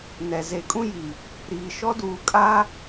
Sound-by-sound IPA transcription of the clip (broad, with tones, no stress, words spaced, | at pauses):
nɛ˨ ze˨ kʼũ˦ ji˨ | ɾiː˨ʃɔ˦ duː˨kʼa˦